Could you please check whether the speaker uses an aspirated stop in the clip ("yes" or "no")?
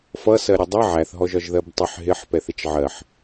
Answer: no